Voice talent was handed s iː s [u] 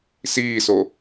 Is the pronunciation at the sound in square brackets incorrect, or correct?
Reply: incorrect